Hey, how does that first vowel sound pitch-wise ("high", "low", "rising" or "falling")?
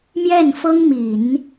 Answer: falling